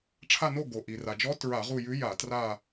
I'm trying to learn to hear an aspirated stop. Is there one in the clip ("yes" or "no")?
yes